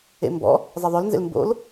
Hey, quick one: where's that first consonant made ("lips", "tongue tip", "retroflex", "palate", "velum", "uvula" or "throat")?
lips